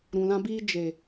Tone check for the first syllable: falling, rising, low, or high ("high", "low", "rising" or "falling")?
low